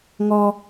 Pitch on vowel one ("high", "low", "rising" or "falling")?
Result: low